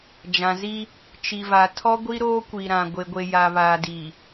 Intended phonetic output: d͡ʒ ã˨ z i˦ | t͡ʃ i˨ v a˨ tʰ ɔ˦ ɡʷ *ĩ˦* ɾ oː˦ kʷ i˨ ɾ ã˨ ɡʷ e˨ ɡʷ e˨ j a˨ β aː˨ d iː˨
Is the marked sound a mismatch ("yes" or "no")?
yes